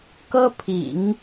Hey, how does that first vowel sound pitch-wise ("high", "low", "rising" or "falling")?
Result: high